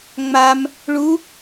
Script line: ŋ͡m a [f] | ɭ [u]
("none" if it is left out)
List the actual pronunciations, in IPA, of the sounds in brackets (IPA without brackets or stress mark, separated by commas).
m, u